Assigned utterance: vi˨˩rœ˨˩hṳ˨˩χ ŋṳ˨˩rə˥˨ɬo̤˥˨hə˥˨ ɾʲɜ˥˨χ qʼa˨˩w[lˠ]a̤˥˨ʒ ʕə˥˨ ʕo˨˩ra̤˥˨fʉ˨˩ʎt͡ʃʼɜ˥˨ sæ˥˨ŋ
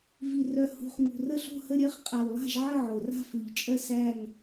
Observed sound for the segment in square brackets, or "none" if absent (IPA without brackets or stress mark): lˠ